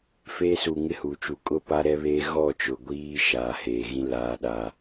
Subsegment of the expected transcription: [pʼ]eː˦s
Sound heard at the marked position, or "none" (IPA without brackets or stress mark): f